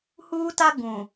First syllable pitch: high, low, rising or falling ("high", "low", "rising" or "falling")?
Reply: high